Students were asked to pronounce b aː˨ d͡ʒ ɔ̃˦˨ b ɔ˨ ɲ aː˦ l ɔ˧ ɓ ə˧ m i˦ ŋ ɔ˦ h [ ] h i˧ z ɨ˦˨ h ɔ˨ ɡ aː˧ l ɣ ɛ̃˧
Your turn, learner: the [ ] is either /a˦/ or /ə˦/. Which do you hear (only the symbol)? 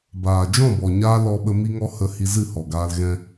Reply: ə˦